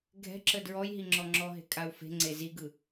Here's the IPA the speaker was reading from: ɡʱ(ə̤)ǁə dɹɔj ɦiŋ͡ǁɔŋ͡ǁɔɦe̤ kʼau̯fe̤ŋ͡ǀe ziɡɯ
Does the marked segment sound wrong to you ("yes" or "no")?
yes